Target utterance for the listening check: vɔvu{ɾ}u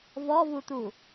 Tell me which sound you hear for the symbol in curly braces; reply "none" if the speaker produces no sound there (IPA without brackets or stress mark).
t̪